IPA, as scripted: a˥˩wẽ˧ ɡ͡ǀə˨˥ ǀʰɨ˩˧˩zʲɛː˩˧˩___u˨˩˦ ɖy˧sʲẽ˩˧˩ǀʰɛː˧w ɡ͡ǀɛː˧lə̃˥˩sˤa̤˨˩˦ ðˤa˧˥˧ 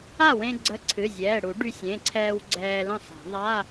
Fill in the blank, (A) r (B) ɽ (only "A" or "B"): B